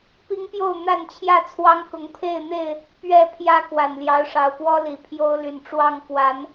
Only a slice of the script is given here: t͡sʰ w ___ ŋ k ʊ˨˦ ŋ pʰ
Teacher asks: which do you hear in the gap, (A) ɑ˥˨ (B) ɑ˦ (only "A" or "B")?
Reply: B